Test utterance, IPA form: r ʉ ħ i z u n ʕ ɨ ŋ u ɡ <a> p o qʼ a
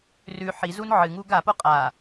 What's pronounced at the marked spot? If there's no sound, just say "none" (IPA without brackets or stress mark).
a